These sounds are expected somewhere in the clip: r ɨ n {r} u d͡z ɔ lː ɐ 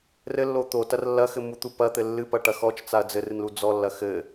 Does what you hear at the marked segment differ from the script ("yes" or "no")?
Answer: yes